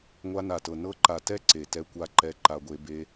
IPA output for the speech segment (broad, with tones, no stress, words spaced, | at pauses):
ŋʷa˧na˨tɤ˨ nɤ˧ǃa˨ tɛ˦ǀe˨ tɛ˧kʷa˧ǃɛ˧ ǃa˧ɡʷe˧ be˧